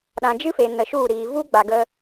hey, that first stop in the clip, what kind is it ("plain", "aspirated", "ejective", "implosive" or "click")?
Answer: implosive